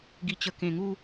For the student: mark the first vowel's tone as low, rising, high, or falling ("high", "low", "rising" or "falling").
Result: low